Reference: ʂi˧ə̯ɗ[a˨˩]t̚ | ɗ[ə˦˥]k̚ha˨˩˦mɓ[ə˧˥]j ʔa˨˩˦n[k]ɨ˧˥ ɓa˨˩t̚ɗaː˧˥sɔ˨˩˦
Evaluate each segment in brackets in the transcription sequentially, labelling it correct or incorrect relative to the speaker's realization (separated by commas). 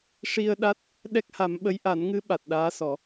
incorrect, incorrect, correct, incorrect